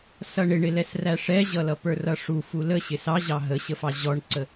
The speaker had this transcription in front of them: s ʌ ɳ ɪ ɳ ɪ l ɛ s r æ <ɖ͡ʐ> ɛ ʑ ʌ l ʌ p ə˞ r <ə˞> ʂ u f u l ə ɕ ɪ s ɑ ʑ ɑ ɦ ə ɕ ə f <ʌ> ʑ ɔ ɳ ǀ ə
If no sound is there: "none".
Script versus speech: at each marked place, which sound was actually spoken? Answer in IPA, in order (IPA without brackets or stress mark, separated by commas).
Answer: ʂ, ʌ, ɑ